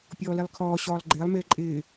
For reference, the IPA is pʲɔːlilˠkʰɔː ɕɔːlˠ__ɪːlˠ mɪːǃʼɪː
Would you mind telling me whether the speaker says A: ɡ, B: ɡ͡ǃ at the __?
B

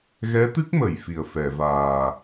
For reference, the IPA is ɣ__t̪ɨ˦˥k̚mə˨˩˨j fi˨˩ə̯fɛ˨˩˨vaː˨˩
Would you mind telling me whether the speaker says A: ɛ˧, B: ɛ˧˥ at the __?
B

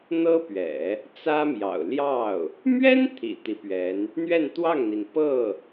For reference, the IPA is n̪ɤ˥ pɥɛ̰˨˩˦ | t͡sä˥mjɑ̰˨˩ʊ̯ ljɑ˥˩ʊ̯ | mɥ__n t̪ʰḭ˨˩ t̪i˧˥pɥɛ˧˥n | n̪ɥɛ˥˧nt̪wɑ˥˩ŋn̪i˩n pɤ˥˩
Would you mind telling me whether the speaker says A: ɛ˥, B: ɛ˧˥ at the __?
A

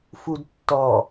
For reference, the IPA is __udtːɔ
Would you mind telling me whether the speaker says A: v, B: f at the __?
B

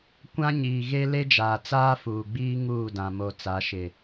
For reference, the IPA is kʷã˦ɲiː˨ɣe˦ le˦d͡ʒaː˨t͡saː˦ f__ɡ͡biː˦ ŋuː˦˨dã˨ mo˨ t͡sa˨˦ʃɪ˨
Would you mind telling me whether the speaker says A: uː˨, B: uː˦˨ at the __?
A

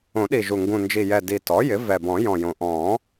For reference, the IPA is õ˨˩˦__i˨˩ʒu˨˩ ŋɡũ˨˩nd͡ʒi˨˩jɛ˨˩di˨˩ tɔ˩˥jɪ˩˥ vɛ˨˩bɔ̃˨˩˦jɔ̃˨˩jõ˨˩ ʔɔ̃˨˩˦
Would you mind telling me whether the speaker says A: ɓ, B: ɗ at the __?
B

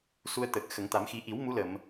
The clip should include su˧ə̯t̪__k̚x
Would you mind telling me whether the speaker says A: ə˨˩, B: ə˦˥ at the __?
A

